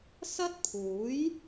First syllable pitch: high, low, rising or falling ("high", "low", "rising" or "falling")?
high